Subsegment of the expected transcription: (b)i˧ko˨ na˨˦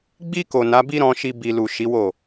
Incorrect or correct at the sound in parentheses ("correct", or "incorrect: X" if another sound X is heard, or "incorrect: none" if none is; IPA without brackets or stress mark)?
incorrect: ɡ͡b